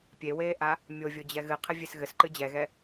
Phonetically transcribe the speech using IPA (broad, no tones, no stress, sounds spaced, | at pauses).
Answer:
pʲ e w eː ʔ a | mʲ o vʲ o d͡ʑ ɛ ɣ ɨ qʰ ɘ vʲ e s ɣ ɘ s ǃ ɨ d͡ʑ ɛ ɣ ɛ